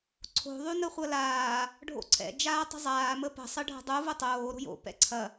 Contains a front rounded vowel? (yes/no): yes